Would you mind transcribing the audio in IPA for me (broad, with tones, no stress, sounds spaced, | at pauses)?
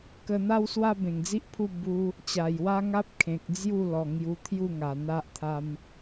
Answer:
k ə˧ n̪ a˦ w s w a˦ b ẽ˨˩ ŋ d͡z i˦ ʔ pʰ u˥˧ b u˦ | t͡ɕ a˨˩ j w a˦ ŋ a˦ p̚ kʰ ẽ˨ k̚ d͡z j u˥˧ l ɔ˨˩ ŋ j u˧ t̪ʰ j u˥˧ ŋ a˨˩ n̪ a˦ ʔ t̪ʰ a˦ m